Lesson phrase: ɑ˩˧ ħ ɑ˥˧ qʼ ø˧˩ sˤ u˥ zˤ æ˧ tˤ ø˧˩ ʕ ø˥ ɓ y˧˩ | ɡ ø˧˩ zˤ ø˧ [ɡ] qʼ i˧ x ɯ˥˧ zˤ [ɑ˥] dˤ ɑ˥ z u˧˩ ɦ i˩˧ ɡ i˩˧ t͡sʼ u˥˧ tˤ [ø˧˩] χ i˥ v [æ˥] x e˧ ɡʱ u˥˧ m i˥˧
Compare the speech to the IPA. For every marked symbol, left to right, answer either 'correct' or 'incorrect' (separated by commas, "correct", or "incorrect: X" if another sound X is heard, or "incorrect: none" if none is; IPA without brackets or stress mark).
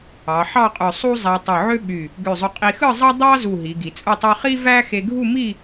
incorrect: none, correct, incorrect: ø˥, correct